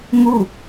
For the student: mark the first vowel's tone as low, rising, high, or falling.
falling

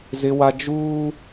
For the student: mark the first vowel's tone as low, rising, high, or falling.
high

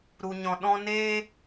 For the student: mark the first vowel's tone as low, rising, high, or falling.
low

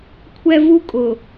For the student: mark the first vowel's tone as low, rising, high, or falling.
high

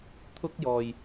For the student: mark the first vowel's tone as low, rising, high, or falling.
high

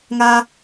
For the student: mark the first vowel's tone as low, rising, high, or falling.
high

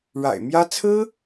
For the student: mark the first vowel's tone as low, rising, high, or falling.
low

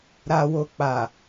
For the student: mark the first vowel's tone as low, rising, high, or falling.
low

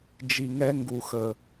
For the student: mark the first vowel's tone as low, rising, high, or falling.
low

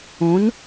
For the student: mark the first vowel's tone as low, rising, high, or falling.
rising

